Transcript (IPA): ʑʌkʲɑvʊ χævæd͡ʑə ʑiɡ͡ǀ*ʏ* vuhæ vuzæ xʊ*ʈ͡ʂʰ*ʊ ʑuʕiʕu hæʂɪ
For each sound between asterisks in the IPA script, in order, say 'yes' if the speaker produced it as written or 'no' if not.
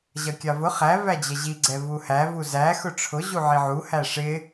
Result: no, yes

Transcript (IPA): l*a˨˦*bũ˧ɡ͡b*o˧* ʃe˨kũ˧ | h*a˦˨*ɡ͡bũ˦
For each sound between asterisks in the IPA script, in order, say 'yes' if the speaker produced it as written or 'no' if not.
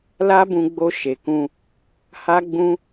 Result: no, yes, no

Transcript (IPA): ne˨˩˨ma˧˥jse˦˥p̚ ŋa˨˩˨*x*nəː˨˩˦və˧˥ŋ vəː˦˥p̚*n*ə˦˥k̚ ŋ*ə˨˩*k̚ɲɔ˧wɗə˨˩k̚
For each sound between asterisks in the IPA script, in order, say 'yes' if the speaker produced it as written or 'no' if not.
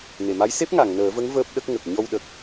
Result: no, no, yes

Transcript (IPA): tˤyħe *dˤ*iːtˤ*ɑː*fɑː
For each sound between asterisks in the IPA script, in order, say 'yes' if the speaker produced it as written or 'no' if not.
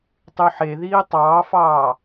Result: no, yes

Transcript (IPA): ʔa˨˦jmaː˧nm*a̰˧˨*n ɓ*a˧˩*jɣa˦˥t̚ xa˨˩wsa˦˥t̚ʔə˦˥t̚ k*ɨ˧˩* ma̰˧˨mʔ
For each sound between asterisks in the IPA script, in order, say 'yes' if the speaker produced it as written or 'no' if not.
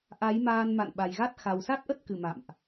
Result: yes, no, yes

